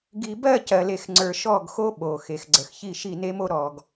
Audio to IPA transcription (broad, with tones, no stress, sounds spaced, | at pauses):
ɡ i˨ b ɜ˦˨ c ɜ˨ l e˨ x ŋ͡ǀ ə˞˨ ʃ ɔ˦˨ ɡ x o˦ ɓ o˨ x e˨ x ɡ͡ǀ ə˨ x ç i˦˨ ʃ i˦˨ n e˦ m o˦ ɾ ɔ˨ ɡ